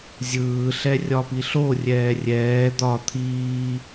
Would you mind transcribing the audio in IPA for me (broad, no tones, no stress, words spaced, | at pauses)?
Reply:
zʲɯːɬɛrʲɒpi ɬorʲɛː rʲɛː d̪ɒ t̪ʰiː